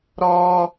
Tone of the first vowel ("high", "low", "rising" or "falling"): high